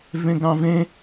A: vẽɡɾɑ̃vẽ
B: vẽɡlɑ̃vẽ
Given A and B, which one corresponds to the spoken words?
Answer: A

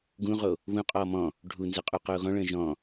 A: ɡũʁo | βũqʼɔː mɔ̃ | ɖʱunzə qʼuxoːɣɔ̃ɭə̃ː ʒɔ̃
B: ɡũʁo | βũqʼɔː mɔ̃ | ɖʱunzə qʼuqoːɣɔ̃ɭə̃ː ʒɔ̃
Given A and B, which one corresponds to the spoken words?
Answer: B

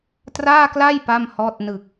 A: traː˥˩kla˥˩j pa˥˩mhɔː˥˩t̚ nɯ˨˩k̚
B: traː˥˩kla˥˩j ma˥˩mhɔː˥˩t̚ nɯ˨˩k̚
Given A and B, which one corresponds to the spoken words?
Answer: A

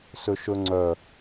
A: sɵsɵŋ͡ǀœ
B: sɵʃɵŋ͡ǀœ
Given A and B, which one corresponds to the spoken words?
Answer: B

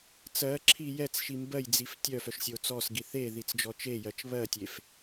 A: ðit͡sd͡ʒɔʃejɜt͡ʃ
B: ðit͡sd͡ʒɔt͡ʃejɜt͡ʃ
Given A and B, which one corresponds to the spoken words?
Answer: B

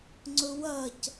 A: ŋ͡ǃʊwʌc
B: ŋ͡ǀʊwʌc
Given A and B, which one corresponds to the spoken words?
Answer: B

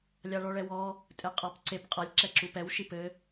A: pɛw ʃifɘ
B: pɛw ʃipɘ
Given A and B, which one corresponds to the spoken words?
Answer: B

